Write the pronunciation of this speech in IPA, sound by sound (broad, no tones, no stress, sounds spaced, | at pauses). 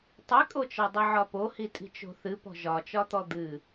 tˤ i kʼ o t͡ʃ ɒ dˤ ɨ ʕ ɒ p o h i tʼ i̤ t͡ʃ o̤ θ ɨ p ɔ̤ ʒ ɒ t͡ʃ ɒ t̪ ɔ d̪ ɨ